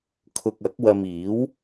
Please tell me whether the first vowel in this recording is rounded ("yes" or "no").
yes